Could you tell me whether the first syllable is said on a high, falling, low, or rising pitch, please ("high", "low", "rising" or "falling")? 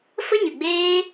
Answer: high